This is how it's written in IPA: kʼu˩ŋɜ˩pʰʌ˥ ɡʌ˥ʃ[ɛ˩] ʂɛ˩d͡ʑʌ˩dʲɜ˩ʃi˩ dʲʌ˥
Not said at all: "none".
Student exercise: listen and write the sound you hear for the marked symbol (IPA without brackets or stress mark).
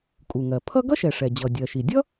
ɛ˩